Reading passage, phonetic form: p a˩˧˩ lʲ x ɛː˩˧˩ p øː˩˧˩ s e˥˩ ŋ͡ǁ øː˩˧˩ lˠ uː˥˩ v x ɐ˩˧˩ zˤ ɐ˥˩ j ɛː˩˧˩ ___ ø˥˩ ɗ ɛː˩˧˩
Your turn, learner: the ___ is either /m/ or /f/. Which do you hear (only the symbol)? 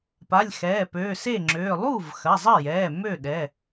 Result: m